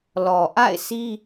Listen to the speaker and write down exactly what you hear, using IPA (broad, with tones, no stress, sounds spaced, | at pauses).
l ɔ˨ ʔ a̰˦˨ ɪ̯ s i˦